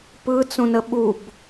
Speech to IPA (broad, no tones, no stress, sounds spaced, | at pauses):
p ɯ t͡s ũ n ə ɓ u b